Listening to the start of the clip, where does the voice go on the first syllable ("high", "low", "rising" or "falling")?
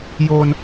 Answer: high